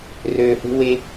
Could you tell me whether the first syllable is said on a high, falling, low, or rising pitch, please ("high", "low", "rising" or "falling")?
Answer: low